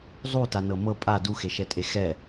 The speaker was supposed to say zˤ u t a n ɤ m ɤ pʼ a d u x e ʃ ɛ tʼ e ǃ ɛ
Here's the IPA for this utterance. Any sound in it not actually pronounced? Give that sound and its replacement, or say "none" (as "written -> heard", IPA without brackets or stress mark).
ǃ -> x